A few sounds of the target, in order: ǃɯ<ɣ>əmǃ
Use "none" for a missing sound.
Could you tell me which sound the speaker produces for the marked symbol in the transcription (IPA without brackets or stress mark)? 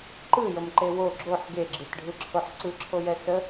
j